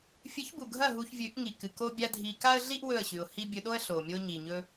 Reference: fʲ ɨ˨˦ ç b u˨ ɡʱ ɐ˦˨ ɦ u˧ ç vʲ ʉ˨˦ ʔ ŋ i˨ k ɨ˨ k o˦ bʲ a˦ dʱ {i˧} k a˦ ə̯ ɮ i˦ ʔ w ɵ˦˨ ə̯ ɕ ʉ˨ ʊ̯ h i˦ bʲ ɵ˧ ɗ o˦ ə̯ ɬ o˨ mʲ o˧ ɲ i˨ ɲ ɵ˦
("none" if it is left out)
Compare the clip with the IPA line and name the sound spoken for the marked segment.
i˧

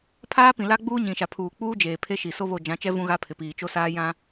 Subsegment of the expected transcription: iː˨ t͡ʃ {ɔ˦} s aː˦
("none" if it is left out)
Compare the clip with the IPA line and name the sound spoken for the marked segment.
o˦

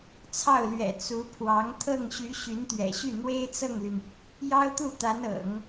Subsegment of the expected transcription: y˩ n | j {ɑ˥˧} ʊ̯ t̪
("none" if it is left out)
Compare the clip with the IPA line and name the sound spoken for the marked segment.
ɑ˥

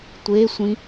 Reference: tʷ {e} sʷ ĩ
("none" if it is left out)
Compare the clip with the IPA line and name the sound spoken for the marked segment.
e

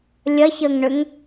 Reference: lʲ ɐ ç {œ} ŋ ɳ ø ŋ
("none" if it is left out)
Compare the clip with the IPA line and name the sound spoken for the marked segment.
ə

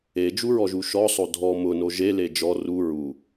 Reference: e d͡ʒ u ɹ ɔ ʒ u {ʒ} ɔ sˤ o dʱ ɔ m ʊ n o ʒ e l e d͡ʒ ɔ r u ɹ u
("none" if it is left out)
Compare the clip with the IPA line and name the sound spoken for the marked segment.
ʃ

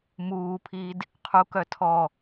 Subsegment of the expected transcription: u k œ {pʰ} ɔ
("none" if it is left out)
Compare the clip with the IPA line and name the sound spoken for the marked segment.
tʰ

